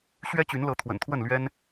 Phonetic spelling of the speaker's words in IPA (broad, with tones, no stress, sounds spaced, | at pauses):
ɕ ɥ ɛ˦ t͡ɕ y˨˦ n l ɤ˨˦ t̪ʰ w ə̰˨˩ n t̪ʰ w ə˥˨ n l ɥ ɛ˦ n